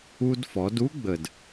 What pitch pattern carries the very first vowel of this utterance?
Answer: high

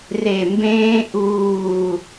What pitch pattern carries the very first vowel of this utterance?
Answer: low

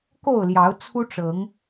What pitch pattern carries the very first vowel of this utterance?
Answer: falling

